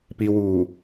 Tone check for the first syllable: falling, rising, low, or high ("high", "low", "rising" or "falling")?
low